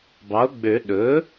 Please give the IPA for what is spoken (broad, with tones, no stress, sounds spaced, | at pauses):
b ɑ˩˥ o̯ ɡ͡b ø˨˩˦ ɗ ɵ˩˥